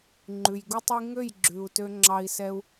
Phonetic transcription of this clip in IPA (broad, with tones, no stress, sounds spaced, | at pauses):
ŋ͡ǃ ʉ˨ j ɡ u˦ tˤ i˦ ŋ ø˦˨ j ɡ͡ǁ ʉ˨ u̯ t ø˧ ŋ͡ǁ ɑ˧ i̯ s ɛ˧ u̯